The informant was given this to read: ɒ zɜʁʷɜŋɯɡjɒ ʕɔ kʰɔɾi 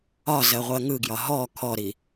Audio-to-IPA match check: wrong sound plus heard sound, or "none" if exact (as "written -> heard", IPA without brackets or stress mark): ʕ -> ɦ